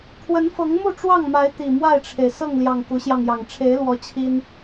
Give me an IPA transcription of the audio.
kʰ w ə˨˦ n f ɤ˨˦ ŋ m u˥˨ ʈ͡ʂ w ɑ˥˨ ŋ m a˨˦ ɪ̯ t̪ i˨˩ m w a˥˨ ɪ̯ ʈ͡ʂʰ e˩ ɪ̯ s ɤ˥˨ ŋ l j ɑ˨˩ ŋ k u˨˦ ɕ j ɑ˧ ŋ j ɑ˨˩ ŋ ʈ͡ʂʰ e˨˦ ɪ̯ l w ɔ˨˦ t͡ɕʰ i˦ n

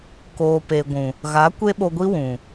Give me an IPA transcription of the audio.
k oː˨ p e˨ ɡʷ ũ˨ | ɣ a˨˦ kʷ e˦ ɓ o˧ ɡʷ i˦ w ũ˨

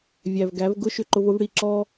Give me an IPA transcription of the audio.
vʲ æ˨ v ɡ æ˨˦ v ɡ ʊ˦ ʃ ʏ˧ ǃ ʊ˧ v ʊ˦ v ɽ i˧ ǁ ɔ˦

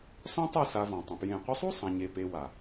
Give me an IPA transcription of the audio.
s ɔ̃˦ tˤ e˦˨ s a˧ v ɔ̃˨ tˤ ə̃˨ p j ẽ˨ qʷ ə˧ sˤ u˦ sˤ ã˧ ɲ e˧ p e˧ w a˨

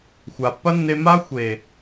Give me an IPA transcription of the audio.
xʷ a˨ pː ɐ˦ nː e˧ m a˦ xʷ e˨

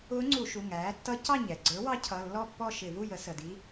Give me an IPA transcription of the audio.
ʊː˧˥ ŋ͡ǀ u˧˩˧ ʃ u˩˧˩ ŋ æː˩˥ tː ʌ˧˥ c ɑ˥˨ ɲ ɛ˩ ɡ͡ǀ ə˞˩˥ w ɑ˧˥ cʰ ʌ˩˧˩ lː ɔ˥˨ pː ɔ˥˨ ʃ ɪ˧˩˧ v u˥˨ j ə˩˥ s ə˩˧˩ d i˧˥

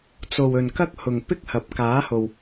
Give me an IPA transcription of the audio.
t͡s o˨ w ɵ˨ n k ɐ˥ k̚ h ʊ˨ ŋ p ɪ˥ k̚ h ɐ˨˥ p̚ k aː˨˥ h o˨ w

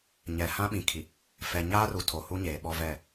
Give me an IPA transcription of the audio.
ɲ ɛ˨ h ã˦ ɓ ĩ˨ kʰ i˨ | f ɛ˨ ɲ aː˦ r u˨ tʰ o˨ h u˦ ɲ eː˨ ɓ ɔ˦ v ɛ˦˨

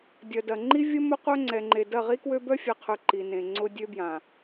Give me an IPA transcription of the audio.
dʲ ɐ˨ d ɐ˨ ŋ͡ǃ i˦ vʲ ə˦ m ʊ˦ qʷ œ˦ ŋ͡ǀ ɛ˨ ŋ͡ǃ e˨ d ɐ˦˨ ʁ i˦ k w ø˦ b œ˦ fʲ ɛ˨ qʰ ø˨ ǃ i˨ n ẽ˨ ŋ͡ǀ ʊ˦ dʲ ø˦ b j ã˨

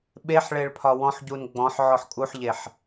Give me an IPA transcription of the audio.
ɓ e ħ ɭ e ɭ pʰ ɒ w ɔ̃ ħ ɟ u n ɡ͡b ɔ̃ ħ ʕ ɔ ħ kʼ u ħ ʎ e ħ

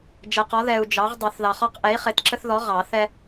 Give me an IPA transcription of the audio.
d͡ʒ ɛ˨ q ɔ˨˥ ð ɛ˨ u̯ d͡ʒ ɑ˨˥ ʁ dˤ ɛ˨˩˦ θ ð ɑ˨ χ ɒ˦ q ʔ ɛ˨˥ i̯ χ e˨˥ t ǁ ə˦ θ ð ɔ˨˥ ʁ ɑ˨˩˦ θ ɛ˦

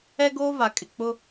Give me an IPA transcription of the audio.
ɛ˦ ɡ oː˦ v a˨ kʼ ɪ˨ k͡p ʊ˦

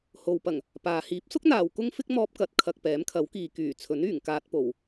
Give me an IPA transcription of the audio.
h o˨ w p ɐ˨˩ ŋ | p aː˨ h iː˨˥ p̚ s ʊ˥ k̚ n̪ aː˨ w k ʊ˥ ŋ f ɪ˥ k̚ m ɔː˧ p̚ k ɐ˨ t̚ kʰ ɐ˨ k̚ p ɛː˨˥ m kʰ ɐ˨˥ w k iː˨ k yː˨˩ t͡sʰ ɵ˨˥ n yː˨˩ ŋ k aː˧ t̚ p o˨˩ w

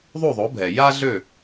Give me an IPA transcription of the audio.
ðˤ u˥˩ ðˤ o˩˥ bʱ ɛ˩ j a˥ ɮ ø˥˩

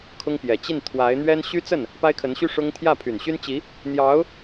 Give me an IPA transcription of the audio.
kʰ ʊ˥ ŋ p j ɛ˨˩ t͡ɕ i˥˩ n t̪ʰ w a˧˥ ɪ̯ n̪ ɥ ɛ˥ n ɕ y˥ t͡s ə˥˩ n | p a˥ ɪ̯ kʰ ə˧˥ n ɕ y˥ ʂ ʊ˥ ŋ t̪ʰ j ä˥˩ pʰ y˨˩ n ɕ y˥ n t͡ɕ i˧˥ | n̪ j ɑ˧˥ ʊ̯

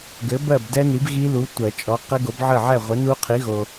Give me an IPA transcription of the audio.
ɡ ɘ˨˥ b ɜ˥˨ b d ɛ˦˥ n i˨˥ b ɣ i˦˥ l u˨˥ tʷ ɜ˨˩˦ t͡ʃʼ ɔ˨˥ q ɘ˦˥ ɡ o˨˥ b ʕ ə˥˨ ʕ ɛ˥˨ ʁʷ ɘ˨˥ n u˦˥ qʰ i˨˥ ɣ o˨

